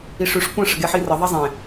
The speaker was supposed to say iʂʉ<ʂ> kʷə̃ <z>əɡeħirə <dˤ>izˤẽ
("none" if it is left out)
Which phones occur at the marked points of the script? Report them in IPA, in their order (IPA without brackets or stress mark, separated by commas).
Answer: ʂ, ʂ, ðˤ